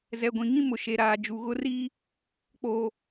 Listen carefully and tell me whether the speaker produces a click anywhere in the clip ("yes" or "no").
no